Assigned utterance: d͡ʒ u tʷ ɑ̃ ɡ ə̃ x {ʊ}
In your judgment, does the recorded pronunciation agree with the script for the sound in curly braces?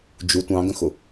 yes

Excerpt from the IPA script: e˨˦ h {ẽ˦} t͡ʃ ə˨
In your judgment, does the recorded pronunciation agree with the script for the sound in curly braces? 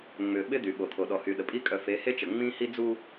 no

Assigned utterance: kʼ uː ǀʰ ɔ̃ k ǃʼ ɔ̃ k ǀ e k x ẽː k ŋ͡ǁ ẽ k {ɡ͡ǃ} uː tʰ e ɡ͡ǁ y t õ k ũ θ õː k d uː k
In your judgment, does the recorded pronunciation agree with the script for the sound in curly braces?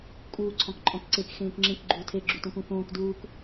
yes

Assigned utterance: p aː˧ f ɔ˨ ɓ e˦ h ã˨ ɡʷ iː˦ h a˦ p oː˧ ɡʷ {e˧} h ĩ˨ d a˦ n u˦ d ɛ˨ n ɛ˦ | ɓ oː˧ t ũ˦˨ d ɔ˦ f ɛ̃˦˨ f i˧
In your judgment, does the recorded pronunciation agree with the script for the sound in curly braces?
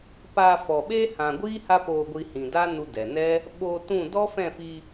no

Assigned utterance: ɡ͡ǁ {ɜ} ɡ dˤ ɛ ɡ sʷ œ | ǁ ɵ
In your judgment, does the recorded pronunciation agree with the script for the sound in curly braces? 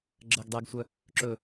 yes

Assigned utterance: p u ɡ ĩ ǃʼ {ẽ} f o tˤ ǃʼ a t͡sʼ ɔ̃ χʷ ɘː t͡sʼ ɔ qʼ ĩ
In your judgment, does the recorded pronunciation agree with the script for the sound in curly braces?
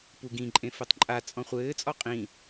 yes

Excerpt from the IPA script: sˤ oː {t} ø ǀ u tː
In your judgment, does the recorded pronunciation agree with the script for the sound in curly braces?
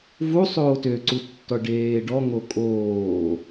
yes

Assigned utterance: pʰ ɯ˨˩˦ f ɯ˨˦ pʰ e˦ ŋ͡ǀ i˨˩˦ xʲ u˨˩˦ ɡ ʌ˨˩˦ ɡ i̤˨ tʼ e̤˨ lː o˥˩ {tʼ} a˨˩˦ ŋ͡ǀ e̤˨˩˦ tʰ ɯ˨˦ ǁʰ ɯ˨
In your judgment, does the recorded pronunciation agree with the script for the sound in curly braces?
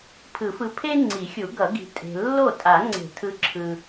yes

